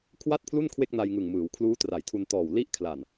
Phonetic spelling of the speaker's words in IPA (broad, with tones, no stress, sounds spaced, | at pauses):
kʰ w a˥˩ t̚ pʰ l u˥˩ n kʰ w e˥˩ k̚ n a˧ j ŋ ɯ˨˩ ŋ m ɯː˩˦ w kʰ l uː˦˥ t r a˩˦ j tʰ u˧ n t ɔː˨˩ w l i˦˥ ʔ kʰ l a˨˩ n